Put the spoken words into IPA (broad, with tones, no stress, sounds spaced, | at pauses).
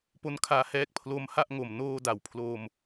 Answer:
p o˦˥ n kʰ aː˧ h ɛː˦˥ k̚ pʰ l o˦˥ m h a˥˩ ʔ ŋ o˨˩ m n oː˧ d a˩˦ w pʰ l o˧ m